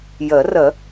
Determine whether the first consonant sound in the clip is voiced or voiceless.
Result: voiced